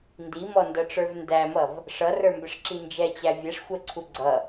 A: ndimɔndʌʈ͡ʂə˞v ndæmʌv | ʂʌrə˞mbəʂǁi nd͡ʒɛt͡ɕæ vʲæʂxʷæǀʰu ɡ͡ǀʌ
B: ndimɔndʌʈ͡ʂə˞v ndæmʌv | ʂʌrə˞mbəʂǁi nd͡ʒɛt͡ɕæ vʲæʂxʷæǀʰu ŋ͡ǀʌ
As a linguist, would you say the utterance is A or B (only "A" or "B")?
A